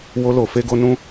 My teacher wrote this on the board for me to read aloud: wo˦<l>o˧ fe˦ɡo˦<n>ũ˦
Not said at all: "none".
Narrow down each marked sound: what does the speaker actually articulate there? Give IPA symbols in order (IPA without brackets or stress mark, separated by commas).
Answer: l, n